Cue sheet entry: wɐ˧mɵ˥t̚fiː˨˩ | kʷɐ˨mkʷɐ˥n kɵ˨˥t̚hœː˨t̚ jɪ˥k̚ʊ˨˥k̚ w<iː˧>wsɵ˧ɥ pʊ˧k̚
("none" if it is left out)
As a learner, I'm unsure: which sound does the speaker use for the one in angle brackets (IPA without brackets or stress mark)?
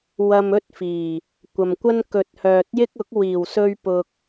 iː˨˩